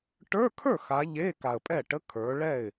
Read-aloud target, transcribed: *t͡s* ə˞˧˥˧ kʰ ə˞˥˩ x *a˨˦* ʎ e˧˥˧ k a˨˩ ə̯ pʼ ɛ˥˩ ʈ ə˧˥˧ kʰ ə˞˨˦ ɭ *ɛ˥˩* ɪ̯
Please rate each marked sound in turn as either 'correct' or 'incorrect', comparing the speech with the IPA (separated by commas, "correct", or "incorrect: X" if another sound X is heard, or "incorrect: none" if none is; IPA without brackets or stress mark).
incorrect: ʈ, correct, correct